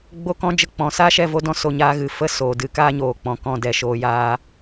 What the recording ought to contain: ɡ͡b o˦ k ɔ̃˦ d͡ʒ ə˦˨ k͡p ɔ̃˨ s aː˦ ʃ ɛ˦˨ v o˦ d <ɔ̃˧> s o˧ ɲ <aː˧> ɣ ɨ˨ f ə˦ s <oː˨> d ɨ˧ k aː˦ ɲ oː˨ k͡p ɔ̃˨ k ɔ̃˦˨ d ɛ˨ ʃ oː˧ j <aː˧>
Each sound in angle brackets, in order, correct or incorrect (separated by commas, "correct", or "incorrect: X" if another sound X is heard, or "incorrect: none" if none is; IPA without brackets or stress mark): incorrect: ɔ̃˦, correct, correct, correct